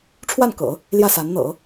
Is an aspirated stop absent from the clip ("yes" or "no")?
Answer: no